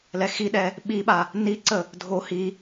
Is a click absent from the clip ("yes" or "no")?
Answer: no